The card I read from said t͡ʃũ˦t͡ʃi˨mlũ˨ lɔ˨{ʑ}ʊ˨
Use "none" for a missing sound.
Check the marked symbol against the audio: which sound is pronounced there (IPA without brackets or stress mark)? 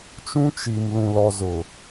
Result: z